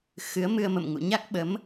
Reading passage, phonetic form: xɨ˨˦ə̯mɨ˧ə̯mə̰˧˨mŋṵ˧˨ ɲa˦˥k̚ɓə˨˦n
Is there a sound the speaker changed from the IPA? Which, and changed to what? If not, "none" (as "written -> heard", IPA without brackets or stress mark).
n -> m